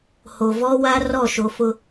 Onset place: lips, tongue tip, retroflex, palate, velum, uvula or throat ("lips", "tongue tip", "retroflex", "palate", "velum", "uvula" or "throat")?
throat